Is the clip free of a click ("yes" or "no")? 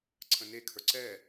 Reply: no